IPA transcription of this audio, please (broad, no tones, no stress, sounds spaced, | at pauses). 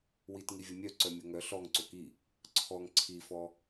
w i t ŋ i vʲ o mʲ œ ǀ œ mʲ o ŋ œ ɬ ɔ ŋ ǀ o k i | ǀʰ ɔ ŋ ǀʰ i f ɔ